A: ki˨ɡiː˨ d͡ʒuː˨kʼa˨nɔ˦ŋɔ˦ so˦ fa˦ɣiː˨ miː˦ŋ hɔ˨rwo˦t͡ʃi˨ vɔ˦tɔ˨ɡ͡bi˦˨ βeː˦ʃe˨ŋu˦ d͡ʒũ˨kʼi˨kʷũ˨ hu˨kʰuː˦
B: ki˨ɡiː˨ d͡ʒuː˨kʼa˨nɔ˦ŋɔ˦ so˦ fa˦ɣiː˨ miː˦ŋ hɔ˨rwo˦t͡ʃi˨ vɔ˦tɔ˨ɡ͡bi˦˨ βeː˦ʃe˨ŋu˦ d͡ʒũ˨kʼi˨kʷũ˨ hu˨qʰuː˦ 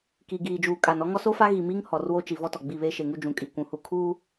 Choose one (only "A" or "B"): A